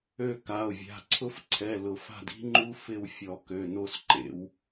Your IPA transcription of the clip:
ø˦˨ka˩˧˩o̯vʲa̤˩˧˩ǀʰʊ˦˥f ǀʰɛ˩˧˩lʊ˨˩˦fa̤˦˨d i̤˦˥ŋ͡ǃu˦˥ fɪ˦˨w fʲɔ˨˩˦ kø˩˧˩no˦˨sǃḛ˨˩˦w

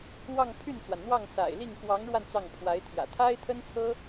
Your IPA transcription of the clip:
wɑ˥˧ŋpʰy˥˩nt͡swa˩nn̪wɑ˥˩ŋ sa̰˨˩ɪ̯li˥˩ŋ kwɑ˧˥ŋɻwa˧n t͡sɑ˥˩ŋ pʰwa˧˥ɪ̯t̪ʰjä̰˨˩ t̪ʰa˥ɪ̯t̪ʰə˥nt͡sʰɤ˥

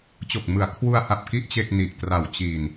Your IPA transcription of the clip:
t͡ɕo˨˩k̚mɯ˩˦a̯ kʰwu˧a̯ha˨˩p̚ki˦˥ʔ t͡ɕe˥˩k̚ni˨˩ʔtra˨˩w t͡ɕi˨˩n

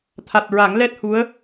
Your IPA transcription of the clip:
t̪ʰa˨˩t̚ɹa˨˩˦ŋlɛ˦˥t̚hu˧˥ə̯

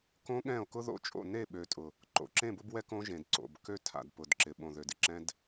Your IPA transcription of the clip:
kõ˦ ɠɛ̃˦˨o̯kʊ˦ðo̰˦t͡ʃʼo̰˦˨ ne˦˨ɓø˨tʼʊ˨ | ǃo̰˨ǁẽ˦˨bʊ˦bwɛ˦ kõ˦ʒẽ˨d ǀo̰˨bkø˦ tʰa̰˨d pʊ˨dǁɪ˨ ɓõ˨ðø˨dɪ˨ ǁɛ̃˦d

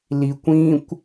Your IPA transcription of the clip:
likʷĩkʷ

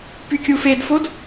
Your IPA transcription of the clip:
pykʲufedfod

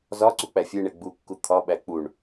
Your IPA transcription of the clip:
zɒ ǀuk͡pæfʲeɳe ɡ͡bukːu t̪ʰɒɓæ k͡puɳ

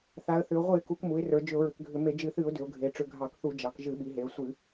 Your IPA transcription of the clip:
θa˩˧ə̯θʏ˩˧ʊ̯ ʁʷɨ˧˩˧ɪ̯ku˩˧k mu˩˧ɪ̯ rə˞˩˧ d͡ʒʏ˧˩˧ʊ̯ɹʏ˩˧kɡʱʏ˧˩˧ me˧˩˧d͡ʒɨ˧˩˧θɨ˧˩˧ʊ̯ dʏ˩˧ʊ̯ɡʱe˩˧ ʈ͡ʂʏ˧˩˧ɡʱɑ˧˩˧kθu˧˩˧ d͡ʒɑ˩˧kʒɨ˧˩˧ɓi˩˧ɦe˩˧ə̯ sʷɨ˧˩˧

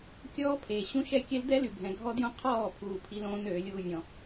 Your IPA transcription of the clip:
kʲɔː˦pʰe˨ ɕũ˦ʃɛ˦˨ kʲɛ˦ldɛ˦ ly˨ bʱɛ̃˨ɡʱɔ˦djõ˦ qʰɔː˦˨pʰuː˨ pʰi˦lõː˦n øː˨˦lʲuː˦vʲɔ̃˦

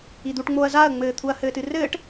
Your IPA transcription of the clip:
id̪uʈŋ͡moːɐ̯ zaɐ̯ŋ͡mɘːt̪ʰuɐ̯ hɘːtɨrɘːʈ

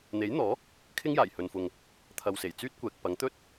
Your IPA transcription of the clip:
n̪e˨˥jn̪ɔː˨˥ | kʰɪ˥ŋjaː˨˩j hɵ˧nfʊ˧ŋ | t̪ʰɐ˨wse˨˩jt͡syː˥t̚kʷɛː˨k̚ pɐ˨˥ŋt̪ɵ˥t̚

